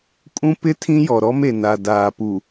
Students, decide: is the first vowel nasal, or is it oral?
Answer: nasal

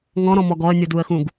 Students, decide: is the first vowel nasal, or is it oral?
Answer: nasal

